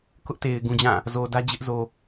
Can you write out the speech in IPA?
kʊ˦ʔte˨ɪ̯ ɡũ˨d͡ʑã˦˨ | zo˨dä˦ d͡ʑɪ˦ʔzo˨

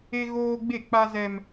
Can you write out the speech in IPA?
e˦ɣoː˦ ɡ͡be˦˨k͡pa˦zɛ˦m

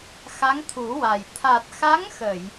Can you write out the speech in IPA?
xa˧˥ŋt̪ʰu˨˩˦wa˨˩j t̪ʰa˨˩t̚xa˧˥ŋxə˨˩˨j

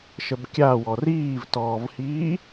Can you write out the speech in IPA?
ʃəbkʲawɔ riːvtɔːvhiː

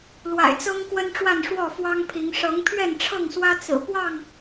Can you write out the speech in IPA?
lwa̰˨˩ɪ̯t͡sɤ˦ŋ kwə˦nʈ͡ʂwa˥˨n ʂwɔ˥˨fwɑ˦ŋpʰi˨˦ŋ ʂɤ˨˦ŋpʰɥɛ˥˨nʈ͡ʂʰɤ˥˨ŋswä˦ t͡sɹ̩˨˩ pwɑ˥˨ŋ

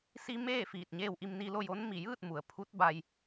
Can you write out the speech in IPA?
si˧ meː˥˨ fiː˧˩t̚ɲeː˥˨w ʔi˧mni˧ lo˥˨jo˧˥n mi˧˩jɯː˥˨t̚ mu˩˧ə̯ pʰu˧˥t̚ba˧j

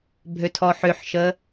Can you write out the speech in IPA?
bʱøtʰɔħøħʃə

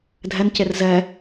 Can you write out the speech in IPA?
dʱɛncer zɛ

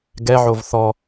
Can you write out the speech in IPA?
ɡɛʕov θɔ

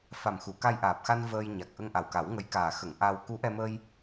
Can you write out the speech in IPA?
fa˨˩mxu˨˩˨ ka˧jʔaː˨˩p̚xa˧n vəː˧j ɲa˨˩k̚ ʔə˧ŋ ʔa˨˩wka˨˩˦wŋə˧˥jkaː˨˩ xə˨˩˨ŋ ʔa˧w ku˧˥ʔɛ˧məː˧j

